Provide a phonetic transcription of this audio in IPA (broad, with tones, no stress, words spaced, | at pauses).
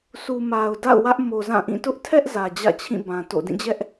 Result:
su˨ma˨ʊ̯da̰˦˨ʊ̯ wä˦ʔmo˨zã˦˨ʔĩ˦˨ tʊ˦ʔtʰɛ˦ʔ zä˨d͡ʑä̰˦˨t͡ɕʰĩ˦˨bã˨ to̰˦˨ dĩ˦˨d͡ʑɛ˦ʔ